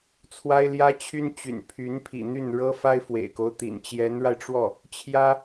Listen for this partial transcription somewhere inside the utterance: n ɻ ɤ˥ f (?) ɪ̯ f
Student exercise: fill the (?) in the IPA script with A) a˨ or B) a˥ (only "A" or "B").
B